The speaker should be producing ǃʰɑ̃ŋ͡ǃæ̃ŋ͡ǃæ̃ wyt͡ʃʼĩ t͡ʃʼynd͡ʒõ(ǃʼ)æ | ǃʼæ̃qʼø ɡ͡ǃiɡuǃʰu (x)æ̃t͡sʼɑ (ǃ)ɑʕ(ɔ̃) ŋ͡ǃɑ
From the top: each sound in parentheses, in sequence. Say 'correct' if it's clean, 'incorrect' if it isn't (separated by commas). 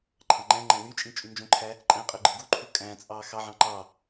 incorrect, incorrect, incorrect, incorrect